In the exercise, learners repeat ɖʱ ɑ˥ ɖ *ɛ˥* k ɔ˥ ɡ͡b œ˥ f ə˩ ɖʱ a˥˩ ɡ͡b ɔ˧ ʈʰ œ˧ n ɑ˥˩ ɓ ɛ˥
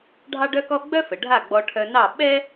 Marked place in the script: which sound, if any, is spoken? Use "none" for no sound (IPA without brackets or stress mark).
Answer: œ˥